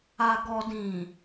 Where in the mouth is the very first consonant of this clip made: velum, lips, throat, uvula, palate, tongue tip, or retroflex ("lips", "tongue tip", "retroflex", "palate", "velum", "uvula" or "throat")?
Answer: velum